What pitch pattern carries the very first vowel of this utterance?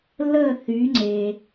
falling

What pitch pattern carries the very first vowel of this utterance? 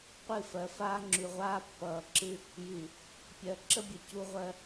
falling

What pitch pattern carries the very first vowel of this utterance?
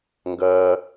low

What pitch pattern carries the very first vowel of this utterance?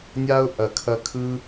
high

